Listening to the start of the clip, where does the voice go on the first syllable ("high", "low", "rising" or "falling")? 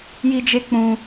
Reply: high